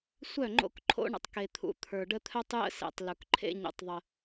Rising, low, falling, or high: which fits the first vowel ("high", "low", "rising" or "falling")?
falling